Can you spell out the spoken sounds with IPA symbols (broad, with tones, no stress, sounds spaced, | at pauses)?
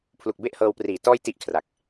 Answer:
pʰ l u˨˩ k̚ b e˥˩ ʔ h ɤː˧ w p r iː˩˦ t ɔː˥˩ j t i˥˩ ʔ kʰ r a˨˩ k̚